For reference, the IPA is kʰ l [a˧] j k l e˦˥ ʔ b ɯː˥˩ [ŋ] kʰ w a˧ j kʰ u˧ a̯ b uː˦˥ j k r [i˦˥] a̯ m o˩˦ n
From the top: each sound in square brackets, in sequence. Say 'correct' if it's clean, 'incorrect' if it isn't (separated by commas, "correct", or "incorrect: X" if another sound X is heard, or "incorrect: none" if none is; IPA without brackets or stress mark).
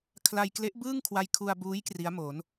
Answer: correct, correct, correct